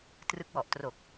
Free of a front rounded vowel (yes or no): yes